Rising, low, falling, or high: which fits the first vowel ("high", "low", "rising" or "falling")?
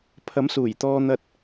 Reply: rising